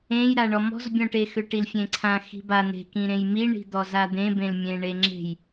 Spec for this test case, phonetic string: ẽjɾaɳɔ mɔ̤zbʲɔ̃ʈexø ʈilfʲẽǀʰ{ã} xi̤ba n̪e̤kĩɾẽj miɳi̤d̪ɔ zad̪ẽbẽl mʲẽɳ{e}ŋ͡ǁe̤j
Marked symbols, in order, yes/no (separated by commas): yes, yes